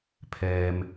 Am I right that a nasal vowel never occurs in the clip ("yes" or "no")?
yes